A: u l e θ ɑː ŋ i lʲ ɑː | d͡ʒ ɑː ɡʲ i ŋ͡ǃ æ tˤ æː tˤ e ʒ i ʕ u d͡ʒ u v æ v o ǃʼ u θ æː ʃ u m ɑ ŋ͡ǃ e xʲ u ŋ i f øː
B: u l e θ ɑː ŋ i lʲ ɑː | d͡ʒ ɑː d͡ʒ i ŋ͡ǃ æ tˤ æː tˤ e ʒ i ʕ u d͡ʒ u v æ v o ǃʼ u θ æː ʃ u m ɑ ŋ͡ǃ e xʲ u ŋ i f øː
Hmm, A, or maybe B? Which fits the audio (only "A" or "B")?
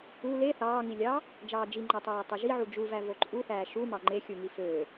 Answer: B